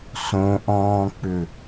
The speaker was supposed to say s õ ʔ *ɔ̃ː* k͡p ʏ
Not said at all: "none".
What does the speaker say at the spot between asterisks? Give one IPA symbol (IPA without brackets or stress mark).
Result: ɔ̃ː